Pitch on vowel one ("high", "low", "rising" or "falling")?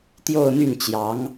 falling